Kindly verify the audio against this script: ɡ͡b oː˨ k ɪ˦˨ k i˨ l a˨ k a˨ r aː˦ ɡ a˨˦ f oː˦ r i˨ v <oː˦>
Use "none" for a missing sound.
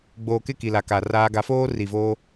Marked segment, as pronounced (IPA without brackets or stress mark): oː˦